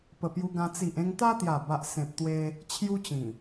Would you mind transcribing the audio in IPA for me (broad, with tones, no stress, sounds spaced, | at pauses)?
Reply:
p ə˨˩ p j u˧ ɡ ã˧ t͡s i˨ ʔ ẽ˧ ŋ t̪ a˦ t̪ j a˨˩ b a˨ ʔ s ẽ˨ p̚ t̪ w e˧ | t͡ɕʰ j u˦ t͡ɕ ĩ˨˩